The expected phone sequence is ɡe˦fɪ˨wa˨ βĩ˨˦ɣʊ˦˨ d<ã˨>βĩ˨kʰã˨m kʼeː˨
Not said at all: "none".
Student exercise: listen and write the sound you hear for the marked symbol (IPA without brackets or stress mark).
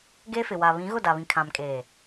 a˨